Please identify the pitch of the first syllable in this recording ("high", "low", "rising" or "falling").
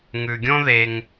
low